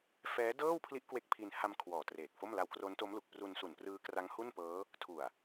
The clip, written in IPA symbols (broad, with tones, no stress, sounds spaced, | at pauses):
f ɛː˦˥ d ɤː˥˩ w pʰ l i˦˥ ʔ k w e˦˥ k̚ pʰ i˧ n h a˧ m kʰ w ɔː˨˩ t r eː˨˩ k̚ f o˥˩ m l a˧ w k r o˦˥ n t o˦˥ m l u˨˩ k̚ p r u˧ n s u˨˩ n p r ɯː˦˥ k r a˦˥ ŋ h u˥˩ n p ɤː˦˥ | tʰ u˨˩ a̯